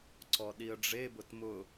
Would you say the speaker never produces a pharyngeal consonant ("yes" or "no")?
yes